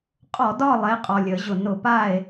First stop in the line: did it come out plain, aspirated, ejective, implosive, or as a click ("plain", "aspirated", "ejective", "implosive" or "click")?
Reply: ejective